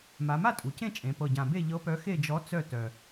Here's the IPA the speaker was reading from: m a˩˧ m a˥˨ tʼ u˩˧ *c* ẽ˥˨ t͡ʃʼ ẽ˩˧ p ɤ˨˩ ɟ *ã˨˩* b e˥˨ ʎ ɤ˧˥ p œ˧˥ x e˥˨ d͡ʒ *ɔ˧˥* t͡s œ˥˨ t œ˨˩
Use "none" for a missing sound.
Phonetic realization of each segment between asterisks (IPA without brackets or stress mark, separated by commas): c, ã˨˩, ɔ˧˥